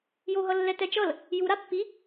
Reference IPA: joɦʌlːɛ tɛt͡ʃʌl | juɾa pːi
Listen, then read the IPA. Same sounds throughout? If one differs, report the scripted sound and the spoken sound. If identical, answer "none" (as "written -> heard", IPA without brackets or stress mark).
none